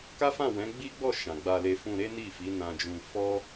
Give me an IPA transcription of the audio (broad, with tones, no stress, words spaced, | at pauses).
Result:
ka˦fã˦˨wɛ̃˨˦ ɡ͡bi˦ɡ͡bɔ˦˨ ʃã˨ɡ͡ba˧le˧ fũ˧ɾe˦ni˦˨fi˨˦ nã˧d͡ʒũ˧ fɔ˦